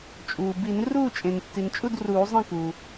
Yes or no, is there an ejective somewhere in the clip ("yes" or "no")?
yes